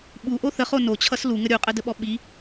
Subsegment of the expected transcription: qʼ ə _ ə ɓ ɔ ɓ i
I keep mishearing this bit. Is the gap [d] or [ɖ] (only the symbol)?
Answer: d